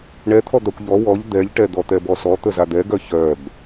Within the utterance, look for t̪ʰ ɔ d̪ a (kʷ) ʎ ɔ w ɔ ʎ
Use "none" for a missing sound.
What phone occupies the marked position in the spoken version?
kʷ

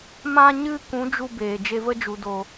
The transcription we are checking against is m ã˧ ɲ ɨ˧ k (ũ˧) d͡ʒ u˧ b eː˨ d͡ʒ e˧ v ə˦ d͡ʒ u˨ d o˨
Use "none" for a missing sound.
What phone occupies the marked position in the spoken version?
ũ˨˦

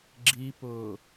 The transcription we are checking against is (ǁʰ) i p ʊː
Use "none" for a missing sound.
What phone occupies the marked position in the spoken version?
ɡ͡ǁ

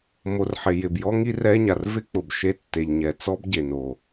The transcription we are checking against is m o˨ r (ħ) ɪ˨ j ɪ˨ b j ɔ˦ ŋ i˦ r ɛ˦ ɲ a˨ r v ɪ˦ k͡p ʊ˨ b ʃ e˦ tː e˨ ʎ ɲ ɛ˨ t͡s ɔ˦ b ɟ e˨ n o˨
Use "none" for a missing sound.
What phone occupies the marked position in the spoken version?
ħ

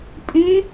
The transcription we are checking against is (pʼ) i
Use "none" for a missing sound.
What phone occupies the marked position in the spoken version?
pʼ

